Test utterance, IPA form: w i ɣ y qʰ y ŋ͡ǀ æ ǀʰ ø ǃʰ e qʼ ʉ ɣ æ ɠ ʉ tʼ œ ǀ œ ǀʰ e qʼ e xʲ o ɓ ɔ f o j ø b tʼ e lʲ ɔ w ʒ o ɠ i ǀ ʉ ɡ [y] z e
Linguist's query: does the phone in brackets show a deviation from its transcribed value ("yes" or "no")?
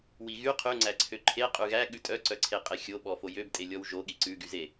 no